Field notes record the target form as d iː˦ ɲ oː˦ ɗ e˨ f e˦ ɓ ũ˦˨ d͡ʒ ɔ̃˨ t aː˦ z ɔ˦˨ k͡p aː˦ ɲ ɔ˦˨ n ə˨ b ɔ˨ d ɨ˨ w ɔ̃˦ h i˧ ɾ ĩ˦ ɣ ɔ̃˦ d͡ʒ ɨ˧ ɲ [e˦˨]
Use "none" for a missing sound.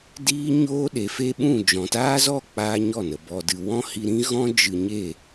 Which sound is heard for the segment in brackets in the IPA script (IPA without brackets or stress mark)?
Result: e˦˨